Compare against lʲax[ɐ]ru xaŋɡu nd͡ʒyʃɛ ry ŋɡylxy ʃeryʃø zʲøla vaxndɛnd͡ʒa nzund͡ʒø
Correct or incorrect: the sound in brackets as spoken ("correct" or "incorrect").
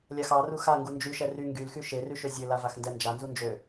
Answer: incorrect